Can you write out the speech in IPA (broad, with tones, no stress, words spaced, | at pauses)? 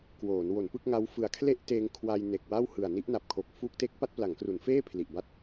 kwoː˩˦n wo˩˦npɯ˥˩k̚ŋa˦˥w fɯ˨˩a̯kʰle˥˩ʔ teː˧ŋkʰwa˧j ne˨˩k̚wa˥˩whɯ˨˩a̯ ni˦˥ʔna˨˩p̚kʰo˨˩k̚ fuː˦˥k̚te˦˥k̚ pa˥˩t̚pla˩˦ŋkru˩˦nfeː˥˩ pʰli˨˩ʔba˥˩t̚